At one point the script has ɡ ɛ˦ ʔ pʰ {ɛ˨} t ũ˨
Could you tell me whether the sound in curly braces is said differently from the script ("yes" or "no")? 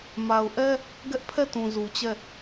yes